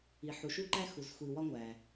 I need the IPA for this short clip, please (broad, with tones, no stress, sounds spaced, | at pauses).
i˩ ħ u˩ ʃ u˧ ǃ æ˧ x u˩ z xʷ i˩ w ɒ˧ ŋʷ æ˩